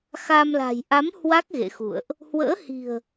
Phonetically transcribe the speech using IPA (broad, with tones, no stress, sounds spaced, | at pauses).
x a˧ m l a̤˨˩ j ʔ a˨˦ m h w a˦˥ k̚ ɣ ḛ˧˨ x ṵ˧˨ ə̯ ʔ | h w ə̰ː˧˥ h i̤˨˩ ə̯